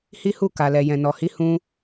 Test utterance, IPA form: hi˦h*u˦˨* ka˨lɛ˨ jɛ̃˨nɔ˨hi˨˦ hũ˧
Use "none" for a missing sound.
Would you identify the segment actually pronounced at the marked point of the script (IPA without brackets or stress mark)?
u˦˨